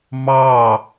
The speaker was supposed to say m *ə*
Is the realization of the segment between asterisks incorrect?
yes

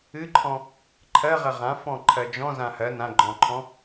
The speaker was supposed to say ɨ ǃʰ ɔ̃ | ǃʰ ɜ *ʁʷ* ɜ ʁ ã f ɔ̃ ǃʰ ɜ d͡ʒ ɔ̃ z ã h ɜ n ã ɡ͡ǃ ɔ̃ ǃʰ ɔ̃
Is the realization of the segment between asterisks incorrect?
yes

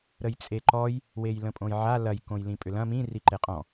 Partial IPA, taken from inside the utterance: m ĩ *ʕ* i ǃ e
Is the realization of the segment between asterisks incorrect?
yes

